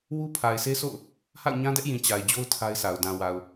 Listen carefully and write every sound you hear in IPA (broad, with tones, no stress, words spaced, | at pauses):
wu˦pʰa˨ɪ̯se˦so̰˦˨ʊ̯ | ha̰˦˨ʊ̯ɲã˦dɛ˦ʔjĩ˨ t͡ɕa˨ɪ̯d͡ʑo˦ʊ̯ tʰa˦ɪ̯sʰa˨ʊ̯ dã˨wa˨ʊ̯